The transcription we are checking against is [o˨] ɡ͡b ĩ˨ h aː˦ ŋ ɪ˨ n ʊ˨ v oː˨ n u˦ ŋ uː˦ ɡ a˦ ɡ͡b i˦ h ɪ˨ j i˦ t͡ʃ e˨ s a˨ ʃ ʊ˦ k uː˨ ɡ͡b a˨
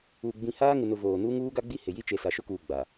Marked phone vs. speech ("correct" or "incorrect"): incorrect